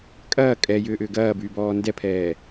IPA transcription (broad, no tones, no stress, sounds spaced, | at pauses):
kʼ ɐː kʼ ɛ j ʏː ʔ ʏː ɡ ɐː b yː b ɔː n d ɛ pʰ ɛː